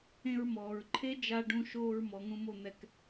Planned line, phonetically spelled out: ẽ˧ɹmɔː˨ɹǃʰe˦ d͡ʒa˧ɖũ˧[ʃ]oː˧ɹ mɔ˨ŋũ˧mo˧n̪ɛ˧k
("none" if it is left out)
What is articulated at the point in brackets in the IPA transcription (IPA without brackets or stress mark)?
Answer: ʃ